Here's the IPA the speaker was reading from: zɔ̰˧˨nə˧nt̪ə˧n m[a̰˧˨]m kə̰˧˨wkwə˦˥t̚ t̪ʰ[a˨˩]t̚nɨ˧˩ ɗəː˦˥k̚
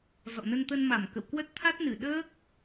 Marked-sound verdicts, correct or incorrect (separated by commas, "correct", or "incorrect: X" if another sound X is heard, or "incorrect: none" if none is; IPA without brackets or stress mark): incorrect: a˧˩, incorrect: a˦˥